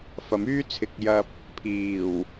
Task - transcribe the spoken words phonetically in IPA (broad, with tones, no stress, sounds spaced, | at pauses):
f ɐ˨˥ m yː˥ t͡sʰ ɪ˨ k̚ j ɐ˧ p̚ | pʰ iː˨˩ w